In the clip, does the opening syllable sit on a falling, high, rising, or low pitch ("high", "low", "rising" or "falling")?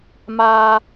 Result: high